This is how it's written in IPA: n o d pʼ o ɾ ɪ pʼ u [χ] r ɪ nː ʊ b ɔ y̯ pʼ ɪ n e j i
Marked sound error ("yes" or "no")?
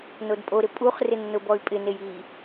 no